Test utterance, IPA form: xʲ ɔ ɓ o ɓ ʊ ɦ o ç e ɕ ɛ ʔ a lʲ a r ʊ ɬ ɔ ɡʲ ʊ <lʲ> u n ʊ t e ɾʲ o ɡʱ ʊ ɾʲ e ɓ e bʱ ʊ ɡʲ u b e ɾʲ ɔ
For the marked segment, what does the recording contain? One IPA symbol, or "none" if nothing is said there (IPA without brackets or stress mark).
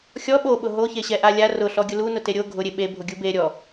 l